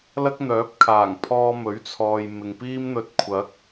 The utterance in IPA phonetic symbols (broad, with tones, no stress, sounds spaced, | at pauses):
l ɐ˥ k̚ n̪ œː˨˥ p̚ kʰ aː˨˩ ŋ pʰ ɔː˧ m ɵ˨˥ ɥ t͡sʰ ɔː˨ j m ɪ˨ ŋ p iː˥ m n̪ ɵ˧ t̚ kʷʰ ɐ˨˥ k̚